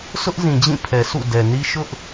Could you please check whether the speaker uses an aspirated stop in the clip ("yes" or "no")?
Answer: yes